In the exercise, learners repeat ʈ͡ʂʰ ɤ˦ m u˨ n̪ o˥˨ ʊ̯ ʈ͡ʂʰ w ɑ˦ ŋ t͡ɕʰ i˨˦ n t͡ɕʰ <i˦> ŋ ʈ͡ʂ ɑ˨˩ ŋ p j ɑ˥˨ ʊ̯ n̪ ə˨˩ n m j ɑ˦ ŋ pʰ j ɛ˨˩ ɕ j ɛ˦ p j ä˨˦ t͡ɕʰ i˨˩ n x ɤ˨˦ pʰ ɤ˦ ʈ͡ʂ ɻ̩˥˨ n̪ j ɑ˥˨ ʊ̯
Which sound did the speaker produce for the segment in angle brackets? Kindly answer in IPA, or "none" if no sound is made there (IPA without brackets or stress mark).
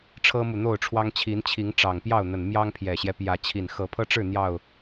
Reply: i˨˦